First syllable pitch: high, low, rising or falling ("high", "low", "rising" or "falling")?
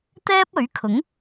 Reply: high